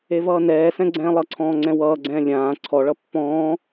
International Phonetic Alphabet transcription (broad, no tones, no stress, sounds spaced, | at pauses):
e v ʌː n ɛː s ɛ̃ ɡ͡ǀ ɛ̃ː lˠ ʌ ǀʰ ɔ̃ː ŋ͡ǀ ɛ̃ w ʌː ɡ͡ǀ ɛ̃ː lʲ ãː ǀʰ ɔ ɭ ʌ pː ɔ̃ː